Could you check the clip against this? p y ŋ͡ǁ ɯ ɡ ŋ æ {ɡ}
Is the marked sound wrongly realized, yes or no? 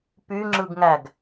no